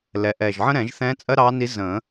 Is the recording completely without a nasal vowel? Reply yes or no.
no